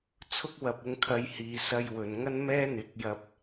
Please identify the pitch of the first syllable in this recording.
high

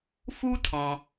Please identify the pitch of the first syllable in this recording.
high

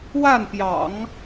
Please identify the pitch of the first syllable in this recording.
falling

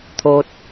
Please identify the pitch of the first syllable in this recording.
low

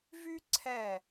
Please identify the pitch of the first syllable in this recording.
high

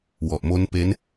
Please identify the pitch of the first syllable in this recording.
low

